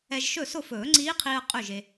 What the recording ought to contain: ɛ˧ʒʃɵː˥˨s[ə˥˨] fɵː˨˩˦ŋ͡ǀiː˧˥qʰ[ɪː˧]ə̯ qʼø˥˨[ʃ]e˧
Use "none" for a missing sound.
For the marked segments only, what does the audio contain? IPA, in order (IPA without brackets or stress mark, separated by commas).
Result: ʊ˥˨, iː˧, ʒ